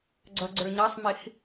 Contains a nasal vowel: no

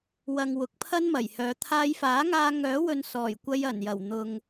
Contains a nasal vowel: no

